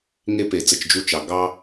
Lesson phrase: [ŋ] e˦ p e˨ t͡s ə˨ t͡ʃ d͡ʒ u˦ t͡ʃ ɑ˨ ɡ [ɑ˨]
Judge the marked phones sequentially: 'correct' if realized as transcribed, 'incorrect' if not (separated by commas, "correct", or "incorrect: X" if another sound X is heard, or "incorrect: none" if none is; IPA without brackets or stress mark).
correct, incorrect: ɑ˦